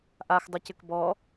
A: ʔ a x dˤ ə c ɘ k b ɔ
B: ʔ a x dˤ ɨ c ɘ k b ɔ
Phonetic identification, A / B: B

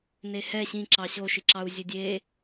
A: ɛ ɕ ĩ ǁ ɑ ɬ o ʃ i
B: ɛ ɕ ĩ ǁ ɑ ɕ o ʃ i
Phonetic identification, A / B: B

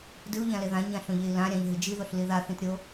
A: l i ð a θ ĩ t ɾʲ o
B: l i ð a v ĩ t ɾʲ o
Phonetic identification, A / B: A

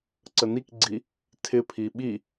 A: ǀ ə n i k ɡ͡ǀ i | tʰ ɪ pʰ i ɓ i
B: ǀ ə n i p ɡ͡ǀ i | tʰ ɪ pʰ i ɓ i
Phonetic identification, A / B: A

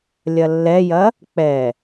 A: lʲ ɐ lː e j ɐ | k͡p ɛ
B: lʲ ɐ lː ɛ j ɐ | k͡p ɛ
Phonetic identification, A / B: B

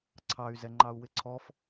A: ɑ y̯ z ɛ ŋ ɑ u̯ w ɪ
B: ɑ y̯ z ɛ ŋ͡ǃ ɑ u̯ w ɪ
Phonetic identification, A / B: B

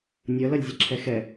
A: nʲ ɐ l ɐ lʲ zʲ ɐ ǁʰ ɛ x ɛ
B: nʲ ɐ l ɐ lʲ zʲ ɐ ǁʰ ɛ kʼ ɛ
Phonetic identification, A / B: A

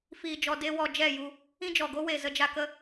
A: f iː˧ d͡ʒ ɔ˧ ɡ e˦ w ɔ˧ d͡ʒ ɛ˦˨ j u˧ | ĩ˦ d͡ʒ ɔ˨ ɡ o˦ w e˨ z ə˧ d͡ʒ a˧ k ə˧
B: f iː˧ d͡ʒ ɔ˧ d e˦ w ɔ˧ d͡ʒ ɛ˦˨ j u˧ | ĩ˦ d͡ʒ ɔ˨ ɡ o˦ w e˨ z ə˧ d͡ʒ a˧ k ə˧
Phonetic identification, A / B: B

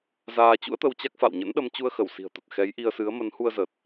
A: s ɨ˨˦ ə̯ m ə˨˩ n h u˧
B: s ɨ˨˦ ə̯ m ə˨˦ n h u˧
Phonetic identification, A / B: B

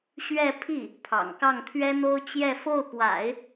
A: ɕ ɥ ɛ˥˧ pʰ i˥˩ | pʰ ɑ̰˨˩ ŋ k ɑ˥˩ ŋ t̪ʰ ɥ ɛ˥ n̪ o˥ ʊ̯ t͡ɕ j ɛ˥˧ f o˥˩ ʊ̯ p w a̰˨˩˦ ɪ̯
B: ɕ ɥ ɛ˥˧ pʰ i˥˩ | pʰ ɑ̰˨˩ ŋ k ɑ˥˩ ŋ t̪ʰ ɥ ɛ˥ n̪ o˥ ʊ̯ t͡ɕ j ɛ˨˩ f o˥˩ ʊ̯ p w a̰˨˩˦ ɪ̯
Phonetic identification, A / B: A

